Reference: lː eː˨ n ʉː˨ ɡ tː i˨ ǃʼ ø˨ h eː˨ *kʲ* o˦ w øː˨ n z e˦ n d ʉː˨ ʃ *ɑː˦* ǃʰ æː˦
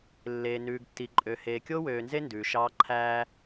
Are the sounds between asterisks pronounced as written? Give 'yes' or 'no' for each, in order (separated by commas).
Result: yes, yes